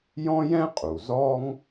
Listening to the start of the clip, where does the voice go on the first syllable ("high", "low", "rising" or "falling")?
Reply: high